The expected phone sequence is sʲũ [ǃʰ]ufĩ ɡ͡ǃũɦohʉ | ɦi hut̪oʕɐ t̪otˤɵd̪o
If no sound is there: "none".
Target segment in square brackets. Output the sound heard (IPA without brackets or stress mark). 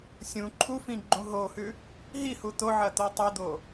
ǃʰ